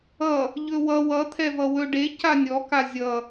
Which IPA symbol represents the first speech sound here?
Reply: ʌ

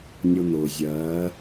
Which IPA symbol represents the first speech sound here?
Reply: nʲ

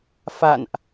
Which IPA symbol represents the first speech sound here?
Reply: f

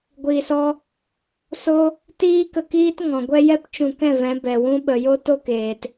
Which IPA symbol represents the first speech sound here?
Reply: ɡʷ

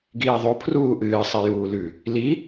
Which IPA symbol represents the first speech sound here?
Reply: ɡ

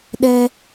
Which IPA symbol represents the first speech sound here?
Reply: ɗ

